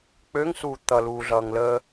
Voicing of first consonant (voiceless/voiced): voiceless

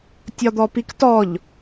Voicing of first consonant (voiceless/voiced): voiceless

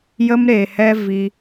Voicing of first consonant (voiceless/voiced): voiced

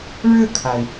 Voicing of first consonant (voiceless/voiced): voiced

